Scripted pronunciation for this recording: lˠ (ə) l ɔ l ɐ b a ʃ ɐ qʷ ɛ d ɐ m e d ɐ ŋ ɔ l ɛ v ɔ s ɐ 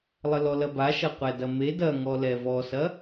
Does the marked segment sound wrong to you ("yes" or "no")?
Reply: no